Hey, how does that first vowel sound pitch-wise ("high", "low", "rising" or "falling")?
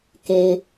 low